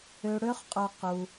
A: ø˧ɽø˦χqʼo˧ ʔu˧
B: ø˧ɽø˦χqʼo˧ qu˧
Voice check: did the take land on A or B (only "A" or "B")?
B